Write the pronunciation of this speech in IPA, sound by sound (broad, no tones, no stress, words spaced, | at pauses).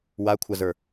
wakʷʰazə˞